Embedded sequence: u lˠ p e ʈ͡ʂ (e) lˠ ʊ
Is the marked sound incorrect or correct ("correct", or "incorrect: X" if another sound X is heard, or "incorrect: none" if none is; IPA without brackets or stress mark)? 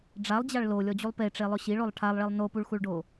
correct